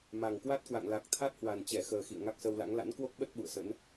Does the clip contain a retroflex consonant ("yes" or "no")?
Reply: no